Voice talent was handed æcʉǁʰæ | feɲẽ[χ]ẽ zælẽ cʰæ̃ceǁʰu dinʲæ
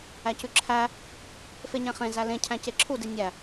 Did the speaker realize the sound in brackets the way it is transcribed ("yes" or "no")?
yes